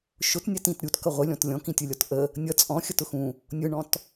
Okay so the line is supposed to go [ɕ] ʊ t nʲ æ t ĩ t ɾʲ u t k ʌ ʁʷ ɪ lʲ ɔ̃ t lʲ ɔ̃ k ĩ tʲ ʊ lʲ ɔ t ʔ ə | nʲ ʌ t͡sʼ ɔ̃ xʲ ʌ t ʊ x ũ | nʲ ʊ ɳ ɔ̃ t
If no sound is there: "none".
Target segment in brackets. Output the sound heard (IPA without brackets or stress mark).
ʃ